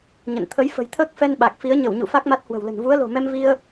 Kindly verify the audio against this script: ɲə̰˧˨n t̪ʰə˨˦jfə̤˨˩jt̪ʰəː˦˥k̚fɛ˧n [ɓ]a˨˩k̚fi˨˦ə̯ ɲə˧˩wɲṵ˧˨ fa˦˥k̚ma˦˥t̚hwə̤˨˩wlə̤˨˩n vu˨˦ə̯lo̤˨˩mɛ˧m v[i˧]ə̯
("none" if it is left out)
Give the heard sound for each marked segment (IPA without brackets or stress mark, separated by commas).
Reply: ɓ, i˧